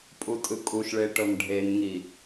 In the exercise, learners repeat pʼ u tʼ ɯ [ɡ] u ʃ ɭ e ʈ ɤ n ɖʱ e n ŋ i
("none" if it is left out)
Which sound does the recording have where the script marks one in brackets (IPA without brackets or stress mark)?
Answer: kʼ